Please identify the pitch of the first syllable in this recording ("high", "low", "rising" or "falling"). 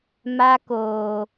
high